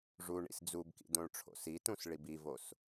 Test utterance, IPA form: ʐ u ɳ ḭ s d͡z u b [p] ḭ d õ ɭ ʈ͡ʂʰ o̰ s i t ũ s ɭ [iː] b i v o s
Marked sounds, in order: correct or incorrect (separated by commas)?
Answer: incorrect, incorrect